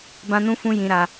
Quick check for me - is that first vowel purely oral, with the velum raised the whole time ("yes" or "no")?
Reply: no